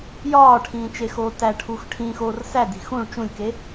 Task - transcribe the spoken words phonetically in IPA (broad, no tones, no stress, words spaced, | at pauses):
jɒːʈʰĩːt͡ʃexoː tæʈʰux ʈʰĩːxoːr sædi̤ xũɭ t͡ʃũlʲke